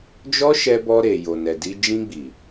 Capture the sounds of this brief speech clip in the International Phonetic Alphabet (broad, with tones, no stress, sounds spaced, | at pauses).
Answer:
d͡ʒ ɔ˦ ʃ ɛ˧ b ɔ˧ ɾ e˨ j o˨ n ɛ˨ d i˧ d͡ʒ ĩ˧ ɡ͡b i˨